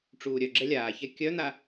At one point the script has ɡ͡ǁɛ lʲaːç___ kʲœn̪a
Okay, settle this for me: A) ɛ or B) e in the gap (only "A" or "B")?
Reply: A